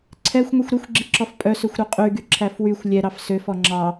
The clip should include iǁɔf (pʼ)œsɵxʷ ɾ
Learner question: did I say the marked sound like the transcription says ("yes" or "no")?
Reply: yes